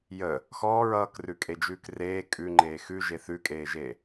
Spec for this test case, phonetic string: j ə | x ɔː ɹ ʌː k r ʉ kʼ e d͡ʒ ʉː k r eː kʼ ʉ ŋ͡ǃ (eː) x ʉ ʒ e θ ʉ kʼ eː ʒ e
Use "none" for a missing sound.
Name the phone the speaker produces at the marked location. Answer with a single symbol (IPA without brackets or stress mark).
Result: eː